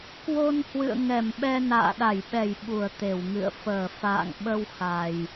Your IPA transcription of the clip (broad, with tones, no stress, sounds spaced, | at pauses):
k w o˧ n h w ɨ̰˧˨ ə̯ ŋ ɛ˧˩ m ɓ ɛ˧ n a̰ː˧˨ ɗ a˧˩ j ɓ ɛ˧˩ j ɓ u˧˩ ə̯ t̪ e˧˩ w ŋ ɨ̰˧˨ ə̯ f əː˧˩ f a̰ː˧˨ ŋ ɓ ə˧ w x a˨˩ j